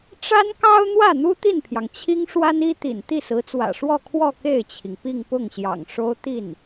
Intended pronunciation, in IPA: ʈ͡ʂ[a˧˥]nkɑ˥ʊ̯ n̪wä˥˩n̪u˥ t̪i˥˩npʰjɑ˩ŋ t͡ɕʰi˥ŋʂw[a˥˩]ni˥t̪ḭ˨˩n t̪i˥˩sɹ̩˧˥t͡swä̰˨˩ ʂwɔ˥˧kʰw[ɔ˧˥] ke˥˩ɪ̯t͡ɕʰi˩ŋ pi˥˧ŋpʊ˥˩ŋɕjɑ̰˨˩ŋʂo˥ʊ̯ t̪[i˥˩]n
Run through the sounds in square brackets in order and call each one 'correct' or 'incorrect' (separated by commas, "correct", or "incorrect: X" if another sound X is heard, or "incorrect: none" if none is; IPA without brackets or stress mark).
incorrect: a˥, incorrect: a˥, incorrect: ɔ˥˧, correct